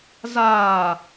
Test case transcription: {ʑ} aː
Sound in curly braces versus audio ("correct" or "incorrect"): incorrect